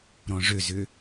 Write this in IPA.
ɾ ɔ̃ ʐ ø z ʏ

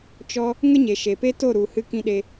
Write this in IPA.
t͡ʃ ɔ˦ | ŋ ə˦ ɲ e˨ ʃ e˨ p e˦ t o˦˨ ɾ u˨ h ɨ˧ k ĩ˧ ɗ e˧

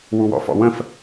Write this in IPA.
w u w ɔ̰ f ɔ̰ w ə̃ f

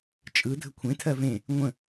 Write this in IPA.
t͡ʃʼ ɯ dʱ ə kʷʰ ẽ tʰ ɜ v ẽ | ŋʷ ə̃

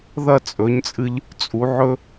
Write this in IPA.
ð ɐ˥˩ t͡sʼ ɵ˩˥ ɲ t͡sʼ ɨ˧ ʎ | t͡sʼ u˩˥ ʕ ɵ˥

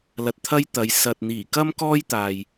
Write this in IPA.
l ɐ˧ t̚ t̪ʰ ɐ˥ j t̪ ɐ˨˧ j s ɐ˨ t̚ n̪ iː˨˩ k ɐ˥ m k ɔː˥ j t̪ aː˨ j

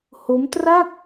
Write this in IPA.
h o˦˥ m t r a˥˩ k̚

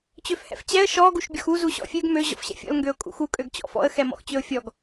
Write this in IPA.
t͡ɕ ø f h ɛ̰ f t͡ɕ ɛ ə̯ ʃ ɔ ɡ u ʃ bʲ ɔ x u z u ɕ ɔ̰ fʲ ø ɡ m ø ʑ ɔ̰ f ɕ ɛ̰ fʲ ɔ̰ l ŋ ɡ ø ʊ̯ kʼ ṵ x u kʼ ø ɡ t͡ɕ ɔ̰ f ɔ̰ ə̯ x ɛ m ɔ̰ x t͡ɕ ø ʊ̯ fʲ ɔ ɡ

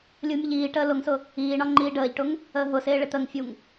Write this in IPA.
lʲ u mʲ ə ʎ iː ʈ əː l ʊ ŋ s ʊ | iː ɳ ɒ ŋ͡ǃ iː ɖ əː ʎ ʈ ʊ ŋ | əː ɦ ʊ s ɪː ɭ ɪ t̪ ə ŋ fʲ u ŋ

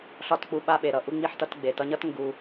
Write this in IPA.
ɬ ɒ˦˨ t k͡p u˧ ɓ a˧ ɓ e˨ ɾ ʌ˦˨ ʔ u˧ ŋ͡m i˧ ħ t ʌ˧ t ɡ͡b e˨ t ʌ˧ ɲ ʌ˦ t ŋ ɡ u˧

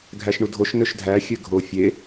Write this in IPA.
ɡʱ æ ʃ ɳ u dʱ o ʃ n ø ʃ dʱ æ xʲ ø ɡʱ o fʲ e

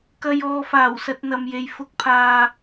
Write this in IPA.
k ɐ˧ j ɔː˨ f aː˨˩ w s ɐ˧ t̚ n̪ ɐ˨ m j e˨ j f ʊ˧ k̚ pʰ aː˨

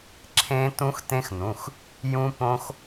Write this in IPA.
ǁʰ ẽ˦˥ t ũ˦˥ x t ẽ˦˥ x n ũ˩˧˩ x | j ũ˦˥ p õ˦˥ x

